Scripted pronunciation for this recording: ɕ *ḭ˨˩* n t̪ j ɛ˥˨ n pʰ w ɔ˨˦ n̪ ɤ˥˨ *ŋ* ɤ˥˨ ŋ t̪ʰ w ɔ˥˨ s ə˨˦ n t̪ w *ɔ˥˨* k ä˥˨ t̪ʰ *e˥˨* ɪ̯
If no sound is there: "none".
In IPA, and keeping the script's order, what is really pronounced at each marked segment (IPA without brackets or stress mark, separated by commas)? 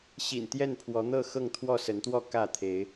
ḭ˨˩, x, ɔ˥˨, e˨˦